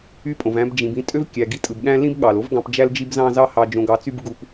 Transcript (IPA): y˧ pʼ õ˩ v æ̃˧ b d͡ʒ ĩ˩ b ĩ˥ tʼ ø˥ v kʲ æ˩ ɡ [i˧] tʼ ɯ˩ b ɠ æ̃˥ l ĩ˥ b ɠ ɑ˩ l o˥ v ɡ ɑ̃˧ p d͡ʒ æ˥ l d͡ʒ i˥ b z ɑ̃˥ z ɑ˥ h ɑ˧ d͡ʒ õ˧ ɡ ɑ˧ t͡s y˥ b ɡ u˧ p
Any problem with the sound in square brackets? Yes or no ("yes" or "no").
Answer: no